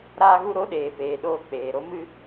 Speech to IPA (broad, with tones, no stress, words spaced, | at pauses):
ɾaː˧ɣu˧ɾo˨˦ ɗeː˨peː˨ɗoː˧ k͡peː˨ɾo˦mɨ˦